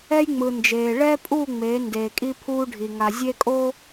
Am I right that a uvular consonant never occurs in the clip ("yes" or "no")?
yes